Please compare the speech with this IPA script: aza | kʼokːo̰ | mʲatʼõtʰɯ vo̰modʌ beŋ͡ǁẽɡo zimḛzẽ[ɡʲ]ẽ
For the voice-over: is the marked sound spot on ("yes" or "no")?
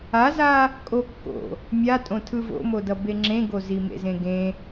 no